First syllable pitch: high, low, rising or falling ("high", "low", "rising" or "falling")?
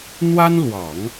high